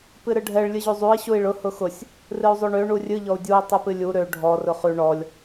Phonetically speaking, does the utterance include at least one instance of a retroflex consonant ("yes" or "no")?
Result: yes